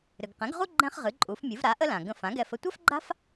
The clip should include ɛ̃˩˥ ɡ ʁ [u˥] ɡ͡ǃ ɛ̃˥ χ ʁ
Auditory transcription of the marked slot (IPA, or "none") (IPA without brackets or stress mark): u˥